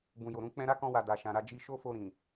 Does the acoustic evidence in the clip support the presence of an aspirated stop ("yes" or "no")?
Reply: no